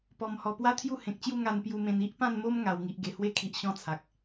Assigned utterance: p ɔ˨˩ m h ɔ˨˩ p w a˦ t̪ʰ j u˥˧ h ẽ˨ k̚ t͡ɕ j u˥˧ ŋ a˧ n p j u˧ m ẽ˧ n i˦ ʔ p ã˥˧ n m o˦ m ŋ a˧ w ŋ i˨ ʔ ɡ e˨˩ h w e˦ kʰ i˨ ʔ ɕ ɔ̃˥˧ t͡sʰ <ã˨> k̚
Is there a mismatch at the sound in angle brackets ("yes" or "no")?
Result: yes